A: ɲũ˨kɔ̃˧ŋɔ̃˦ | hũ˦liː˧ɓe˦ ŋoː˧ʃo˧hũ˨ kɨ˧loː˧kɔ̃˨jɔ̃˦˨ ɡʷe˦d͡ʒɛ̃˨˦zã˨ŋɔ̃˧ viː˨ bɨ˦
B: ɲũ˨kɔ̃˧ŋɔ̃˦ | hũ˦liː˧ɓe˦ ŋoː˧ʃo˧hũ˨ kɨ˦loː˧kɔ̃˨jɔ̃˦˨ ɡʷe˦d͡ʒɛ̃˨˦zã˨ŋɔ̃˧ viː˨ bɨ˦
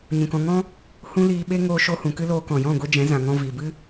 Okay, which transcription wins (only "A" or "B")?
B